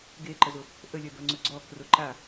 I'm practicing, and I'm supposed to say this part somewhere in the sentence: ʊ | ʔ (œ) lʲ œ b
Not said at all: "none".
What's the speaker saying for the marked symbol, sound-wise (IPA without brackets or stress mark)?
ə